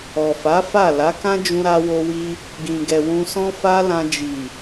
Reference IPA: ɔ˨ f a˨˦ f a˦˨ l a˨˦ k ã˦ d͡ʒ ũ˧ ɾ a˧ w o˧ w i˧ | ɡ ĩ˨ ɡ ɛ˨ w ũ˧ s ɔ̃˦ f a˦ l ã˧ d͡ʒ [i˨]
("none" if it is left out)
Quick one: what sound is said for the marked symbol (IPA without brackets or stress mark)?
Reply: i˨